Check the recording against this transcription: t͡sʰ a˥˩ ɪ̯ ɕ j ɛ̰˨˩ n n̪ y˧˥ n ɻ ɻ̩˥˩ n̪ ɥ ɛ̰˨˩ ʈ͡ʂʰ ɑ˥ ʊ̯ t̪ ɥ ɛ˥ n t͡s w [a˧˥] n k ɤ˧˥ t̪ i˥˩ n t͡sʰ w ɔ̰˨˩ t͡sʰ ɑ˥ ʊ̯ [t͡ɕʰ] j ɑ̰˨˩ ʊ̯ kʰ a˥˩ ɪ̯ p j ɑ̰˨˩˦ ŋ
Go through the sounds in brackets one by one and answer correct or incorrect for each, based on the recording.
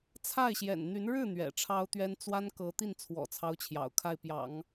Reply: incorrect, correct

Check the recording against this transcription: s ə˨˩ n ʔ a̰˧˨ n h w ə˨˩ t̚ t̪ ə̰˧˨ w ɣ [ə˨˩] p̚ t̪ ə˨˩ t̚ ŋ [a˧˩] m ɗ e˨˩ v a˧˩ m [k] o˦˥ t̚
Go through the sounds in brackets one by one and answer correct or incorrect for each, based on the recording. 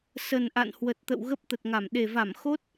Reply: incorrect, correct, incorrect

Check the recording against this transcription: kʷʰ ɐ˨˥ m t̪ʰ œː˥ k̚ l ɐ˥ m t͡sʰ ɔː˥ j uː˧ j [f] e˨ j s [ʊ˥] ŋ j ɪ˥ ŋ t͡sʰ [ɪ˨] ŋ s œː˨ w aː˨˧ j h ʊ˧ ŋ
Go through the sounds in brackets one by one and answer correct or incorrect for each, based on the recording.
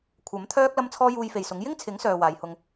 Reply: correct, incorrect, incorrect

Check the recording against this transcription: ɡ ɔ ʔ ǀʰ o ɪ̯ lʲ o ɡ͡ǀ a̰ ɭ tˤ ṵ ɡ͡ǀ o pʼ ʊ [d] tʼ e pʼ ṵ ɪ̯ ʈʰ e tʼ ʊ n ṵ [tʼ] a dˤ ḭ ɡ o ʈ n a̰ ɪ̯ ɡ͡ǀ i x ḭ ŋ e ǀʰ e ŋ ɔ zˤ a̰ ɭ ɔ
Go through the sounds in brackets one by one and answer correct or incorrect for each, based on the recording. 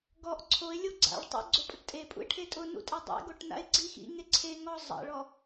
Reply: incorrect, correct

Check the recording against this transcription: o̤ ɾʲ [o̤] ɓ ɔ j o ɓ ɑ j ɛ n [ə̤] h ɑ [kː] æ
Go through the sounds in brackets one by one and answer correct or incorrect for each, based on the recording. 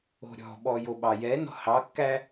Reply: incorrect, incorrect, correct

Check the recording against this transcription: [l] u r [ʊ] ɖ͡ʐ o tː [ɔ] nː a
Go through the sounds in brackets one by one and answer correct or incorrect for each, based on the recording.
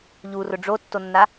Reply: incorrect, correct, incorrect

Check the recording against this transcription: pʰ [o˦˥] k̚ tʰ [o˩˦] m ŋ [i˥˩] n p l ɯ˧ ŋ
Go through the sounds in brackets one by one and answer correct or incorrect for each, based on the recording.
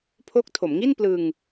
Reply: correct, correct, correct

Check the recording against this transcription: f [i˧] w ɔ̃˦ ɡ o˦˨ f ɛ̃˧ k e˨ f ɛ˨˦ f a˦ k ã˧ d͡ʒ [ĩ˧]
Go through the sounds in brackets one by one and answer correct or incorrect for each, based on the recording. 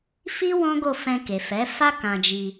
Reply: incorrect, incorrect

